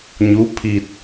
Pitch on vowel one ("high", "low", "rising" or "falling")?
rising